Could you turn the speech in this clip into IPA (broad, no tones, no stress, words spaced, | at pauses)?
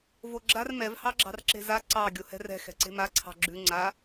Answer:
voɡ͡ǁar mɛv hɑɡ͡ǁɑ̤rǁe̤za ǀɑ ɡʲohɛ̤rɛ̤ xɛ̤ǀe̤ma ǀʰɑ̤ɡ͡ǁʉ ŋ͡ǀa